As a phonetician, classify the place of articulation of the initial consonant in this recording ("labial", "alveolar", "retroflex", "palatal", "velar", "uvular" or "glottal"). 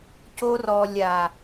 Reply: palatal